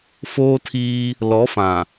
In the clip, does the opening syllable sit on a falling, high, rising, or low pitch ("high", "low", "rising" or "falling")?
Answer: high